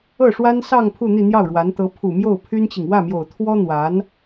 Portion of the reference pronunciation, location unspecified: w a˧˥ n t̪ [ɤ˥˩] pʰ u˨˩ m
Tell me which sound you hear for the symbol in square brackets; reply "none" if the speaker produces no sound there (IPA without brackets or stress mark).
ɤ˧˥